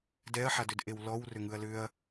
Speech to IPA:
d ɛ ɐ̯ ħ a d ʏ d ʔ e w l ɔ w r ʏ ŋ ɯ ɐ̯ l ʏ ɐ̯

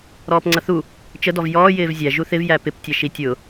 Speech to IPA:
ɾ ɔː p ŋ͡ǀ ʌ θ u | t͡ʃ ə d ɔ v j ɔː j ɪː v zʲ æ ʒ u θ ɪ v j æ p ɪ p tʲ ɛ ʃ i tʲ ʊ

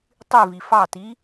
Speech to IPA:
tˤ y v i f ɑ t i

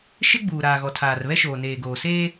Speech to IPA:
ʃ ɪ˦ ɡ͡b uː˨ ɾ aː˨ ɣ ɔ˨ tʰ aː˨ r β ɛ˦ ʃ oː˨ n eː˨ ɡ oː˨ s eː˦

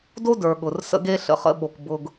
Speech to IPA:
d o˦ d ə˞˨ ɠ ʊ˨ r s ə̰˦ ɡ e˦ ɬ ə̰˨ χ ə̰˦ ɓ o˨ k b ʊ˨ ɡ

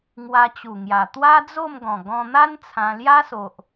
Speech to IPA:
ŋ w a˧ t͡ɕ u˨˩ ŋ j a˨˩ t̪ w a˦ d͡z o˥˧ m ɡ ɔ̃˨˩ ɡ ɔ̃˧ n̪ a˦ n t͡sʰ ã˧ l j a˦ s o˨ ʔ

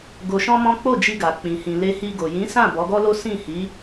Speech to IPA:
ɡ o˧ ʃ ɔ̃˦ m ɔ̃˦ k͡p o˦˨ d͡ʒ i˧ ɡ a˨ k͡p ĩ˨ h ĩ˨ l e˧ h i˧ ɡ o˨ j ĩ˨˦ s ã˦˨ b ɔ˨˦ ɡ ɔ˦ l o˦ s ĩ˦˨ h i˨˦

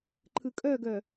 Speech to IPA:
ǃʰ ɯ kʼ œ ɡ œ

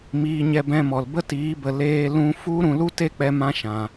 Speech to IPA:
m iː˧ ɲ ɛ˧ b ɛ̃˧ m ɔ˨ l b ə˦ t iː˨˦ b ə˨ l eː˦ l ũ˦ f u˦ ɾ ũ˧ l u˦ t e˦ k͡p ɛ˧ m ã˦ ʃ ã˨

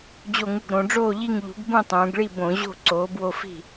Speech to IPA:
d͡ʑ o˧˩˧ ŋ u˧˩ ɡ ɾ õ˩˧ ɖ͡ʐ oː˥˩ ʎ i˥˩ ŋ ʎ ṳ˩˥ ɡ b ũ˥˩ tˤ ũː˩˧ ɡ ɭ i˥˩ b õ˧˩˧ ʑ o̤˥˩ ǀ oː˩˥ b w o˥˩ f i̤˥˩

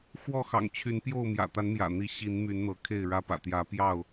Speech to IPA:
x w ɔ˥˨ x ɑ̰˨˩ ŋ t͡ɕʰ y˨˦ n p j o˥˨ ʊ̯ m j ä̰˨˩ t̪ a˨˦ n m j ä̰˨˩ n̪ i˨˦ ɕ i˨˦ n m y˨˦ n n̪ ɤ˨˦ kʰ e˥˨ ɪ̯ ɻ ä˦ p ä̰˨˩ t̪ j ä˨˦ p j ɑ˥˨ ʊ̯

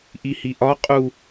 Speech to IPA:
ʔ i h i ʔ ɒ qʼ u

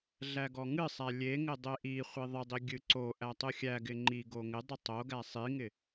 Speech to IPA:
ɮ æ ɡ ɔ ŋ ɨ sˤ æ lʲ e ŋ ɪ dˤ e ʔ i χʷ i ðˤ ɪ dˤ i ɡʲ ɨ ǀ o ʔ æ tˤ ɨ xʲ æ ɡ ɪ ŋ͡ǃ i ɡ o ŋ ɪ dˤ ɨ tˤ o ɡ æ sˤ i ŋ ɪ

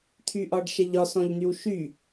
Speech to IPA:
t̪ʰ y ʔ ɒ ɖ ʃ ɛ ʎ ɒ s ɔ̃ ʎ n̪ y w ʃ y

